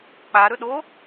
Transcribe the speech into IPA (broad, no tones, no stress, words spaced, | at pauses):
k͡pa ɾɵɗo